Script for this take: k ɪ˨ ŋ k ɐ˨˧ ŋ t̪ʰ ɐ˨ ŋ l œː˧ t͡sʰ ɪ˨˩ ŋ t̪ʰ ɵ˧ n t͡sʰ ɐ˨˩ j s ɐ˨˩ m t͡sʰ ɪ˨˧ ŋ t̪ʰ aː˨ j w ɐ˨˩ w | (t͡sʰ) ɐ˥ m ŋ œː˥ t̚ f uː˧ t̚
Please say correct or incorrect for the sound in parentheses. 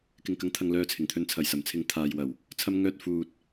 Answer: correct